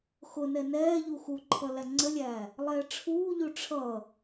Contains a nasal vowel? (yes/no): no